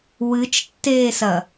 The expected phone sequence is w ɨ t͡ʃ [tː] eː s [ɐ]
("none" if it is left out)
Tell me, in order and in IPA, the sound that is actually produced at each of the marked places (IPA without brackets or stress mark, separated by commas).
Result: tː, ɐ